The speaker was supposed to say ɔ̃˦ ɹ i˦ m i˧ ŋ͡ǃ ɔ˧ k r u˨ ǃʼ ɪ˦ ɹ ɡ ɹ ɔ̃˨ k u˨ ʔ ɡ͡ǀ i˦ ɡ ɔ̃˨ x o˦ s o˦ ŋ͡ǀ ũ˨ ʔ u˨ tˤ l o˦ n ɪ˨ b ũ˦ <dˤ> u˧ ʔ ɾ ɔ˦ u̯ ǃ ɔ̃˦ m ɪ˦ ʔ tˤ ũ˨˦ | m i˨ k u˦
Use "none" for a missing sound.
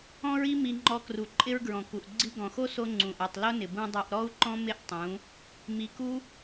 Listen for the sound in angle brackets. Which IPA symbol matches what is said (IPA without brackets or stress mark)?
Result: dˤ